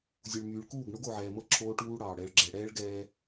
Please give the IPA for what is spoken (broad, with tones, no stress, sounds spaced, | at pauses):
zʲ u˨ ɭ m yː˨ ɭ k uː˦˨ ɡ ɳ o˦ ɡ o˨ ʕ ɛː˨ m ɤ˦ ǁʰ oː˦ ʈ uː˦ ɽ ɑː˨ ɽ ɛ˨ ɭ ɡ͡ǁ ɛ˨ ɽ ɛː˦ ɭ ɡ ɛː˦